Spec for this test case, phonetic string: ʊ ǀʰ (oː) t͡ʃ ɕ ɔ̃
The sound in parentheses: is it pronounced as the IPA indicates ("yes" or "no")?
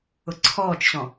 no